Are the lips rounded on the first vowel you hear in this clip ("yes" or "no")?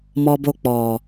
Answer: yes